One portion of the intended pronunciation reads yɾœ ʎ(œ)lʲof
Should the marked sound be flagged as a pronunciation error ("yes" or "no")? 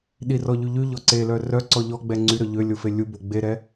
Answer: yes